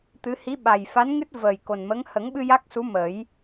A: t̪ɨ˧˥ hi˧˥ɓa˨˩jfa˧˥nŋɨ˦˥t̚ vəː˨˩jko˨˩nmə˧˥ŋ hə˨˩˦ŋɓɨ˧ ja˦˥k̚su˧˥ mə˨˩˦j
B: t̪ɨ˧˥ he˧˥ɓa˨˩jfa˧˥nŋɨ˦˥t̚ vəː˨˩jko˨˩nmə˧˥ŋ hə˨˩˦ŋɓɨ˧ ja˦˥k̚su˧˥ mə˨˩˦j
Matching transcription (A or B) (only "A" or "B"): A